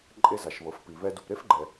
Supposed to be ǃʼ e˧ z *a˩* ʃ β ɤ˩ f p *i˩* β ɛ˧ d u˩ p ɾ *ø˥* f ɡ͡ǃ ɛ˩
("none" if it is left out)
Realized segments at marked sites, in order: a˩, i˩, e˥

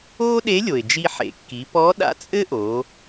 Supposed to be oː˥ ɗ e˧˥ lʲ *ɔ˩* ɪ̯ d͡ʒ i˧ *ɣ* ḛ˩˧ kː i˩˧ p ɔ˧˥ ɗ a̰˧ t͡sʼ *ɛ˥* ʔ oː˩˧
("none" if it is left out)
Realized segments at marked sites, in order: o˩, ħ, ɘ˥

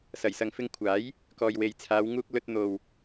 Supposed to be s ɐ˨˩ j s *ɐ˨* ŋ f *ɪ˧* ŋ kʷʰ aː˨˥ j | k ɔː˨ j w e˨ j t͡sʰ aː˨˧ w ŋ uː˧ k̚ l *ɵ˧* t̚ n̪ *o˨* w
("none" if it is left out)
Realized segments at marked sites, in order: ɐ˨, ɪ˧, ɵ˧, o˨

